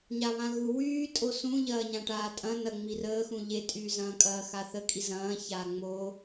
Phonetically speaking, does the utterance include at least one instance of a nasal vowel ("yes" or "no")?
yes